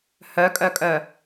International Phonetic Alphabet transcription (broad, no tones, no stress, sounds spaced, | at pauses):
h œ kʼ œ kʼ œ